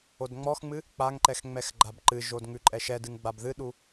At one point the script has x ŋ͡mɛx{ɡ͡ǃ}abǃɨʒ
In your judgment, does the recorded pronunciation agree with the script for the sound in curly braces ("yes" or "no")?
yes